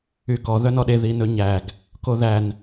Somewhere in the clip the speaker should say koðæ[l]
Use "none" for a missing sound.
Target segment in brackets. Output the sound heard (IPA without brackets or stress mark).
n